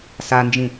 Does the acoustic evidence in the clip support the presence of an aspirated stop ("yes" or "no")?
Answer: no